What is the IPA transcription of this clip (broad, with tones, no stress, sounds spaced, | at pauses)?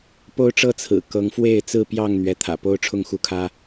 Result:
p o˦ ʊ̯ ʈ͡ʂ ɤ˦ t͡sʰ ɹ̩˨˩ k ɤ˨˦ ŋ f w e˥˨ ɪ̯ t͡s ɹ̩˥˨ p j ɑ˥˨ ŋ n̪ ɥ ɛ˨˦ t̪ʰ ä̰˨˩ p o˦ ʊ̯ ʈ͡ʂʰ ʊ˥˨ ŋ x u˦ kʰ ä˦